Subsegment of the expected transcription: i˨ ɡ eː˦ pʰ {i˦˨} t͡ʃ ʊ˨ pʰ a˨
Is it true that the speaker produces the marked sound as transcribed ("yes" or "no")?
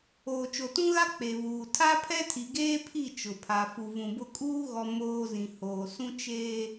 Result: yes